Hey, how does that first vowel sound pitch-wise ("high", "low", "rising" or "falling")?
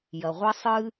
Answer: low